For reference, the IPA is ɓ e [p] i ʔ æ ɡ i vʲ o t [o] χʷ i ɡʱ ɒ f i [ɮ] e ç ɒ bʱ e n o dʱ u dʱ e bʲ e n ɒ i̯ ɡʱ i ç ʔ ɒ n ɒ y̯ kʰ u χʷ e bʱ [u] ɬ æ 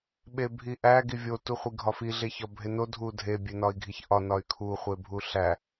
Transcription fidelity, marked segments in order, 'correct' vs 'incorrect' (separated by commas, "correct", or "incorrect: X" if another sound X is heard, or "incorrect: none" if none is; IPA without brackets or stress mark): incorrect: bʱ, incorrect: u, correct, correct